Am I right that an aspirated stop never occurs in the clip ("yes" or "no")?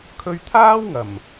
no